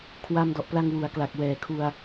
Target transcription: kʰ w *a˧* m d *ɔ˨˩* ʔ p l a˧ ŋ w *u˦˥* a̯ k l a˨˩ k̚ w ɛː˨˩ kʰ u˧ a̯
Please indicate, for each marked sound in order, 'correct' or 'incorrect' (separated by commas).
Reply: correct, correct, incorrect